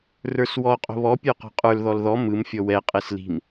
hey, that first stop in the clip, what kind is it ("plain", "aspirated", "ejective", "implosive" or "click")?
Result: ejective